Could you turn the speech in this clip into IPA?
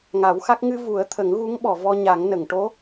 ŋ a˨˩˦ w x a˦˥ k̚ ŋ ɨ˧ v u˨˩˦ ə̯ t̪ʰ ə˨˩˦ ŋ ɣ u˧˥ ŋ ɓ ɔ˨˩˨ v ɔ˧ ɲ a˨˩˦ ŋ n ə˨˩˨ ŋ ʈ o˧˥

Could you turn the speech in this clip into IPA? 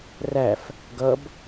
r æ f | ɡ ʌ b

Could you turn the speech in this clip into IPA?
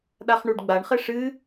ɗ a χ ɳ u ɖ ɡ͡b a ɳ χ ɘ ʂ ɨ

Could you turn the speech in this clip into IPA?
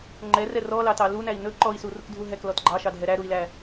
ŋ͡ǃ ɛ r ɛ r ɔ l ɑ t ɑ l u n æ i̯ n ɵ ǃ ɔ i̯ s u r u k dʱ u ɦ ɛ k l ɔ t ɡ͡ǃ ɑ ʃ ɑ dʱ ɛ ɾ æ ɾ u i̯ l æ

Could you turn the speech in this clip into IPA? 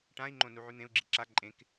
ʈ ã i̯ ŋ͡ǃ õ n u ʕ ʉ n̪ ẽ u̯ ɡ͡ǁ i ǁ a ǃʼ ẽ k

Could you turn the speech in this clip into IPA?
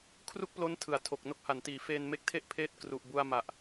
kʰ r u˥˩ k̚ p l o˦˥ n tʰ ɯ˨˩ a̯ tʰ o˨˩ k̚ n o˦˥ k̚ h a˩˦ n t iː˩˦ f eː˧ n m e˦˥ k̚ tʰ e˥˩ ʔ pʰ eː˥˩ t̚ k r u˨˩ ʔ b u˧ a̯ m a˨˩ ʔ

